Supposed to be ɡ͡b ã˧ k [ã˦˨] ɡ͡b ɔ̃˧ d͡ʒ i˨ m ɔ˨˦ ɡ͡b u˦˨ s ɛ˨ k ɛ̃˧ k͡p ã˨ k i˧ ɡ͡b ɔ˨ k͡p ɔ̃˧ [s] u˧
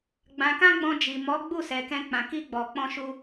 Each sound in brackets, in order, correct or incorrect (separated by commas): incorrect, incorrect